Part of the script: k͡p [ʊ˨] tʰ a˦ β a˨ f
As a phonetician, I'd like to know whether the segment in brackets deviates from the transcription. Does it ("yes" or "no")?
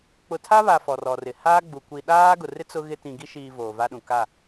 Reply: no